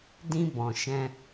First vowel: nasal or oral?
nasal